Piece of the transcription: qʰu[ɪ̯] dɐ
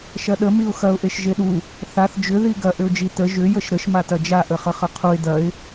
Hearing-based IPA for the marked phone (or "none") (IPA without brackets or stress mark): ɪ̯